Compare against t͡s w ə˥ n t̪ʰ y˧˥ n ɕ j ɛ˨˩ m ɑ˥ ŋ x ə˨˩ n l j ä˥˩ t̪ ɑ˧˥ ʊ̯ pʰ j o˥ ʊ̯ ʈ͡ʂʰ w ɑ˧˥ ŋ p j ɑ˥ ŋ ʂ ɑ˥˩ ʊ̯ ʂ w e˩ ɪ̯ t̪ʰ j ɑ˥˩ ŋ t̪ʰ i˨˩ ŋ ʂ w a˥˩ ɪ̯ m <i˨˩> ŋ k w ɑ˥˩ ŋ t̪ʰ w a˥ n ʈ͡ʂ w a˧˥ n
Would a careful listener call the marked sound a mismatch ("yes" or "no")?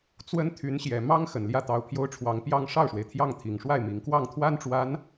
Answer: no